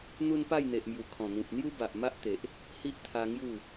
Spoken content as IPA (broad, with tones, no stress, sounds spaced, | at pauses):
n̪ u˦ n p a˥˧ j n̪ e˨ ʔ m j u˨˩ kʰ ɔ̃˨˩ n̪ ĩ˨ p̚ n̪ j u˦ b a˨ ʔ m a˦ ʔ t̪ e˨ ʔ | h i˦ ʔ t̪ʰ a˧ ŋ j u˥˧